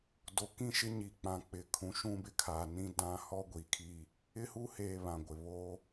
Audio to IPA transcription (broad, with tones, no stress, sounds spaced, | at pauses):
d o˨ k ĩ˦ ʃ ɪ˦ ɲ i˨ k͡p ã˨ k͡p ɪ˨ kʰ ũ˨ ʃ ũ˦ b ɪ˦ kʰ aː˨ n ĩ˦ d ã˦ h ɔ˦ ɡʷ i˨ kʰ i˦ | ɪ˦ h u˦ h eː˨ β ã˨ ɡʷ ɪ˨ β oː˦